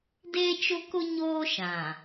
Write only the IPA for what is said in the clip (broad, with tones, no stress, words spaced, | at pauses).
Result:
deː˦t͡ʃʊ˦kʊ˦ ɲoː˦ʃã˨